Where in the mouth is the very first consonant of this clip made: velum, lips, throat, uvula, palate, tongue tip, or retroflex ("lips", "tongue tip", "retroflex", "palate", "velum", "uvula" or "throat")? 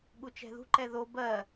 velum